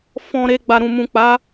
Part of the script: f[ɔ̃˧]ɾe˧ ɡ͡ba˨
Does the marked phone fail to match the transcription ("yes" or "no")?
no